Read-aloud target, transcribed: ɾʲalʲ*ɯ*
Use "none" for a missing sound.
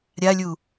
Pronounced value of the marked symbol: u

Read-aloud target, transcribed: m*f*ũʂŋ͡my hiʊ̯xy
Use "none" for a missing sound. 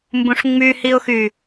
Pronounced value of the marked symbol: b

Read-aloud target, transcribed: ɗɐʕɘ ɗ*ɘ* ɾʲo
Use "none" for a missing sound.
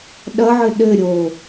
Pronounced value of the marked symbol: ɘ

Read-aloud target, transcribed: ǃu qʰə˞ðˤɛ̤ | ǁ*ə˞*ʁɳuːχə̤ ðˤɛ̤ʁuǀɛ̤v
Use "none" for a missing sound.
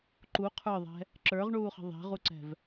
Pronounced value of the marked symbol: ə˞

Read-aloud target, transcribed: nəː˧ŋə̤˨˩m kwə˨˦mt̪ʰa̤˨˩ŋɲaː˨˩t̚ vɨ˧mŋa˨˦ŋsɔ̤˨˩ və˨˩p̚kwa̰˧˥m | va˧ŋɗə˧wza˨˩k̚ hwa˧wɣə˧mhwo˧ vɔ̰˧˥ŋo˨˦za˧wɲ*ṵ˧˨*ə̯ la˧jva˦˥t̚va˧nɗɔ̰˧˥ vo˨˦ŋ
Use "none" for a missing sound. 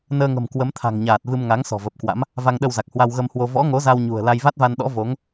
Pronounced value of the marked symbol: ṳ˨˩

